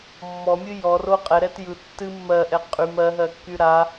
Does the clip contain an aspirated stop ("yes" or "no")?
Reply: no